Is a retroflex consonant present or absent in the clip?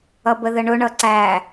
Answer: present